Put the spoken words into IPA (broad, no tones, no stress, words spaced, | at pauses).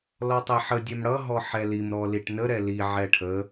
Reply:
lɔtˤɛħə dʲɛmɽʌ ɦɔħɛlim ɾɔliʈnə ɾɛli ʕɛʈʰə